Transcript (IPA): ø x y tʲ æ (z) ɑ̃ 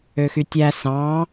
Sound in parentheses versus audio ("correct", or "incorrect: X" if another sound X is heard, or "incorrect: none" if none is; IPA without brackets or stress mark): incorrect: s